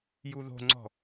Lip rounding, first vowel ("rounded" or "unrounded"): rounded